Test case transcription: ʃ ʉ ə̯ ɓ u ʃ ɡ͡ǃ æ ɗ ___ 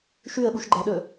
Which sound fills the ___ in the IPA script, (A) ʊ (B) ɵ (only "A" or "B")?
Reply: B